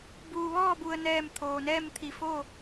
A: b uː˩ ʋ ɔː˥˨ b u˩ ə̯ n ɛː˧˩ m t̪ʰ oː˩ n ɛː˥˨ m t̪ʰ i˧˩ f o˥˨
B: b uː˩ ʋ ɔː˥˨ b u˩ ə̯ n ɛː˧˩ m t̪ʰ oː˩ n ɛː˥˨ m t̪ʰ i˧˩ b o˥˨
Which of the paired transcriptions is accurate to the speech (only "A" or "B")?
A